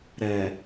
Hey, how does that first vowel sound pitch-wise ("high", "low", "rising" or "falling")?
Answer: low